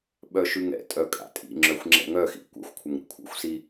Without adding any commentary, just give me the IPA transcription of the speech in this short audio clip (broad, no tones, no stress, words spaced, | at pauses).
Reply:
ɓœʃʉŋɛ̰tʼœ kʼa̰tʼḭŋ͡ǁœxʷ ŋ͡ǁɛ̰ŋœxḭ kʷɛ̰xʷkʷʰəŋ ɾḭkʷʰɛ̰xʷsi